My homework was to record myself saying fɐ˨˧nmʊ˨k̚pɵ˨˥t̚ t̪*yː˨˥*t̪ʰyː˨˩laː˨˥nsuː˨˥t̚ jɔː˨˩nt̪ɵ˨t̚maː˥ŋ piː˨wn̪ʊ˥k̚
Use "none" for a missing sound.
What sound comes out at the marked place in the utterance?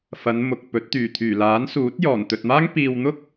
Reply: yː˨˩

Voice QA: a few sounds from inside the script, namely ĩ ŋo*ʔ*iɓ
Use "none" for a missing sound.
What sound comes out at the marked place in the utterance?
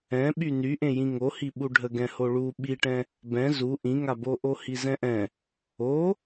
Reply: h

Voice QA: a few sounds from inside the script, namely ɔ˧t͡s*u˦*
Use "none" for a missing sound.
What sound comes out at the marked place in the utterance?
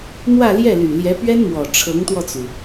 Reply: u˩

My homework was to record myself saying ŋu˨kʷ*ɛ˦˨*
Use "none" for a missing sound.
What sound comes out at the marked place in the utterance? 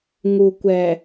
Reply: ɛ˨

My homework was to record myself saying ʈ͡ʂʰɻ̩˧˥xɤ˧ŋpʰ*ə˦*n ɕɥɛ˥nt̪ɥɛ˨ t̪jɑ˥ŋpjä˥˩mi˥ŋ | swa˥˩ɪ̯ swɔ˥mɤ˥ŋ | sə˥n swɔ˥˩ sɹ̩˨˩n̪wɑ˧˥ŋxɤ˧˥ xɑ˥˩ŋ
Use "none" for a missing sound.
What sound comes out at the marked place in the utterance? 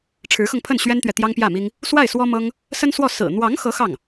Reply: ə˥˩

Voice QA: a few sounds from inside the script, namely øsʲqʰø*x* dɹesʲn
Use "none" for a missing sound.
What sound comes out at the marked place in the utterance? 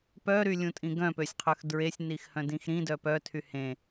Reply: x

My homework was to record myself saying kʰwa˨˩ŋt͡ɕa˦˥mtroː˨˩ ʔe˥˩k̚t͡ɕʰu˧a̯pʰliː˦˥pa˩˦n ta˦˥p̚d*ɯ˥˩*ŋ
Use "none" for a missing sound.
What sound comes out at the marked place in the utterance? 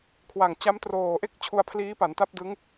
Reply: ɯ˦˥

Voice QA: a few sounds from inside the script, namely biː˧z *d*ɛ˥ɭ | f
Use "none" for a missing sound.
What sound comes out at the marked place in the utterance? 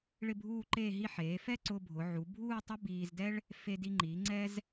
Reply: d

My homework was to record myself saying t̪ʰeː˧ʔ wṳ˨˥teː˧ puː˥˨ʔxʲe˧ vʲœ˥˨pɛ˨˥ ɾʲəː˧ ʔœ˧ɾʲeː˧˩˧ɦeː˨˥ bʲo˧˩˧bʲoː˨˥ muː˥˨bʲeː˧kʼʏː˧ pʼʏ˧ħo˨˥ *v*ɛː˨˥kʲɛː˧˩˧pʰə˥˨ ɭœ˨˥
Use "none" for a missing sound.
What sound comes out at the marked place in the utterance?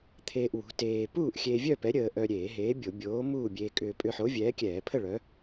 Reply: vʲ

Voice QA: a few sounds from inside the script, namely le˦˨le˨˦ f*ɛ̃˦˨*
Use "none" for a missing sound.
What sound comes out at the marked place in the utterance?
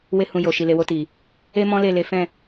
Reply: ɛ̃˦˨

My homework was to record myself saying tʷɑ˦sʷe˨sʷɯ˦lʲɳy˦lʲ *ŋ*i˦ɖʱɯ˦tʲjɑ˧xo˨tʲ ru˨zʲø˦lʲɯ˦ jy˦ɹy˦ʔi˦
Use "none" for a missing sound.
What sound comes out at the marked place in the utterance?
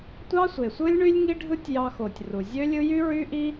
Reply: ŋ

